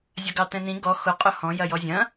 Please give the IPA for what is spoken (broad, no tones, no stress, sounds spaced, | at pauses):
zʲ ɐ ɡ ɑ t ɛ̃ n ĩ ɡ ɔ x ʊ qʼ ʊ h ɔ̃ j ɐ j ɔ zʲ ɐ̃